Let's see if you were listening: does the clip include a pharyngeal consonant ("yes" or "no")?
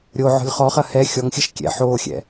yes